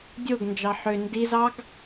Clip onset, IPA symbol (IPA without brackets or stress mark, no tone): dʲ